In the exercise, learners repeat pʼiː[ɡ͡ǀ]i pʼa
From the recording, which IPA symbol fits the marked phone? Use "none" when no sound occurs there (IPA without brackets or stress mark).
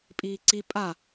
ǀ